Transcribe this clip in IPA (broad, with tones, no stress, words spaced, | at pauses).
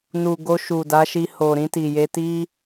nu˨ ɡo˧ʃu˨da˨˦ʃi˧ ho˨ɾĩ˧ti˨je˧ ti˦